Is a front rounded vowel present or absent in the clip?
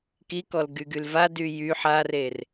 present